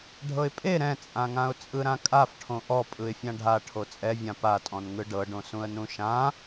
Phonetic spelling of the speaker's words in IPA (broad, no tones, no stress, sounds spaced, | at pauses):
ɖʱ ɤ ɪ̯ pʼ e ɾ ɛ̃ t͡sʼ ã ŋ ã ʊ̯ t͡sʼ ɯ ɾ ã kʼ a f ʈʰ õ ʔ ɔ pʼ ɯ ɪ̯ fʲ ã ɖʱ a ʈʰ o t͡sʼ ɛ vʲ ã p a tʼ ɔ̃ n ŋ ɯ ɖ ɤ ɖ õ s ũ ə̯ n ũ ʃ ã